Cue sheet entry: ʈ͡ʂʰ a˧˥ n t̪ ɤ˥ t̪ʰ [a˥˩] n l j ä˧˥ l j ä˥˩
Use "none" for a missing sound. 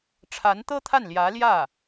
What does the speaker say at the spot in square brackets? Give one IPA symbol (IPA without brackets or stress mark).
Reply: a˥˩